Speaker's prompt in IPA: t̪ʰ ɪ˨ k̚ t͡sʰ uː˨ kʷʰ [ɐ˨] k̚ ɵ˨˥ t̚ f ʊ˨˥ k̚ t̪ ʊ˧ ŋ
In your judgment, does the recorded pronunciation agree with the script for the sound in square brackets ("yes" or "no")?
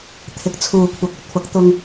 yes